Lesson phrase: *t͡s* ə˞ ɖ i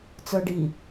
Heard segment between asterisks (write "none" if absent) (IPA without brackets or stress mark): t͡s